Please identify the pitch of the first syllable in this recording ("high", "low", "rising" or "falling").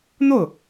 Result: falling